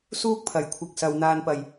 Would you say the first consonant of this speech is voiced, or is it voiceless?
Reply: voiceless